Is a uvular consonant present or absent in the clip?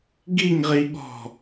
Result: present